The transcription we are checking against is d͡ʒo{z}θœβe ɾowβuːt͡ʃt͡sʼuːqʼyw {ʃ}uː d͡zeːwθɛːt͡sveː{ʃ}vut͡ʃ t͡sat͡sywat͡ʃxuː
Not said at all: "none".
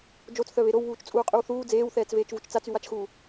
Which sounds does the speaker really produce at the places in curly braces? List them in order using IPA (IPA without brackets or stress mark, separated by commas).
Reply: t͡s, θ, t͡ʃ